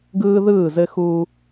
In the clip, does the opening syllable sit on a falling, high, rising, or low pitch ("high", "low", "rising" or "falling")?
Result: high